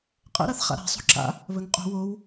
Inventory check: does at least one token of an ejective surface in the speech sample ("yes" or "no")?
yes